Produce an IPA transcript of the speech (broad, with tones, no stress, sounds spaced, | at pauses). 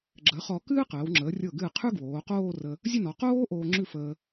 ɡ͡ǁ əː˩˧ χ ɔ˩˧ k ɨː˥ q əː˩˧ w ŋ͡ǁ əː˩˧ rʲ ɤ˧˩ ɡ ɨː˧˩ qʰ ʉ˥ ɡ w oː˩˧ q oː˥˧ r ə˧ | zʲ ə˥˧ n ɔ˩˧ q oː˥ ʔ oː˧ ŋ͡ǁ ʉ˥˧ f əː˧